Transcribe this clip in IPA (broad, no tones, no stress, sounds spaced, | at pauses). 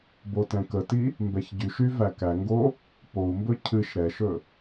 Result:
b o t ɛ̃ k ə t i | m b ɛ ç ɟ y ʃ y v æ k æ ŋ ɡ o | p o u̯ m b ɵ cʰ ɨ ʃ ɾ ɛ ʃ ɵ